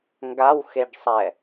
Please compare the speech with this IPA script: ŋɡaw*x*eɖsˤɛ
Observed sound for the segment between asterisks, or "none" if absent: x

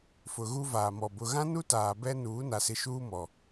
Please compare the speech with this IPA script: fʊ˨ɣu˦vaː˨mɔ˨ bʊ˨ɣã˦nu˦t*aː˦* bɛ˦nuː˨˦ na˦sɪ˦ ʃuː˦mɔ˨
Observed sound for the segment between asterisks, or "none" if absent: aː˨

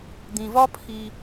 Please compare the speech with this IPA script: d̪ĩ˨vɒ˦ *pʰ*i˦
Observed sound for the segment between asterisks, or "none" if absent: pʰ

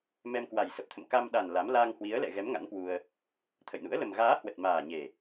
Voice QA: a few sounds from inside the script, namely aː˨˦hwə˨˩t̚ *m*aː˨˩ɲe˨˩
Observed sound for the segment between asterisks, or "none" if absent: m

